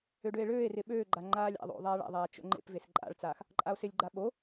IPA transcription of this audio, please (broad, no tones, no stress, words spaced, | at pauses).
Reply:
øɖøe̯ɭøːe̯rɪ ɓøːɡ͡ǃa ŋ͡ǃaːlʲa̰ðˤo̰ ðˤaːɭa̰ðˤaː t͡ʃo̰ŋ͡ǃḛpves ǃʼa̰ɭt͡saːx | ǃʼao̯sɪlʲɡ͡ǃa ɓo